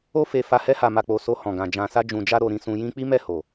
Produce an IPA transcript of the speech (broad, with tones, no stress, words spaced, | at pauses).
o˧fe˨fa˨ hɛ˧ha˨ma˨k͡po˨ so˧hɔ̃˨ɡã˨ d͡ʒã˨sa˧d͡ʒũ˨d͡ʒa˧ ɾo˧ɾĩ˧sũ˧jĩ˦ k͡pi˦mɛ˦˨ho˨